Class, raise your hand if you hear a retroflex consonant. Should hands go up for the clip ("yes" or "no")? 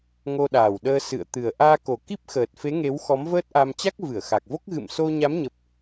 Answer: no